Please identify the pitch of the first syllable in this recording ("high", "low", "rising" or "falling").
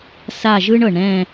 falling